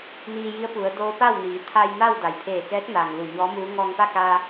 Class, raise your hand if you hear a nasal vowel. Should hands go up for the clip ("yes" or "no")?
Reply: no